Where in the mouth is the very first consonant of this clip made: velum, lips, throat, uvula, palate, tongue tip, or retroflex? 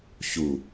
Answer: palate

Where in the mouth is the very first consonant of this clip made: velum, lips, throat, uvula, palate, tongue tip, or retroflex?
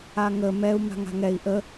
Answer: velum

